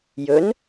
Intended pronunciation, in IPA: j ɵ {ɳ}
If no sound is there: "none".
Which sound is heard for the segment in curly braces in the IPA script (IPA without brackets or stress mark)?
n